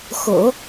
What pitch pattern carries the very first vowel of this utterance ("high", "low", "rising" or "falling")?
low